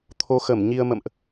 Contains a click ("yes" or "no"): no